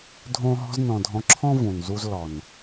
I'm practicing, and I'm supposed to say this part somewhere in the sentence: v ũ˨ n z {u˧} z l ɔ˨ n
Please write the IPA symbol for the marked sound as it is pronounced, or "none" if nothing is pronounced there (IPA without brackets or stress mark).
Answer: u˧